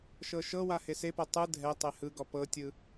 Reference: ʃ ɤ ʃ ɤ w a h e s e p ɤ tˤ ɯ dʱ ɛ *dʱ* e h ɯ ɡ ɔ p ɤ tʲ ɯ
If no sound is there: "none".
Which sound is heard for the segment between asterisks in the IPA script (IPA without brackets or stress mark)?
tˤ